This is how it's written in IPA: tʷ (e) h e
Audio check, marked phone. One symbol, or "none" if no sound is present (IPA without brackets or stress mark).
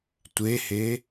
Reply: e